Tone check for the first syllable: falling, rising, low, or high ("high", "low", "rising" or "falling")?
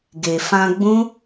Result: low